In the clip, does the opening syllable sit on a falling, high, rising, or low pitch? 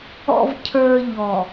low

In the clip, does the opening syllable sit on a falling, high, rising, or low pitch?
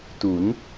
rising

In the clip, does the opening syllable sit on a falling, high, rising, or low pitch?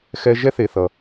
high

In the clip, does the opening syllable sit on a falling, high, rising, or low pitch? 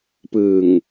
low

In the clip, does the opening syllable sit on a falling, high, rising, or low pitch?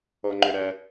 low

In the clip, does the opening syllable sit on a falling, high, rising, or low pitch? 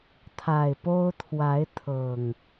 low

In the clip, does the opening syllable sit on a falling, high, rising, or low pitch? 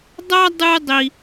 high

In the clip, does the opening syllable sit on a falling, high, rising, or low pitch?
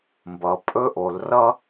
low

